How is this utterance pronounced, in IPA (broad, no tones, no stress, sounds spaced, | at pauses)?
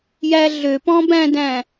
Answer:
j æ ɮ ø p ɔ̃ b æ̃ d æ̃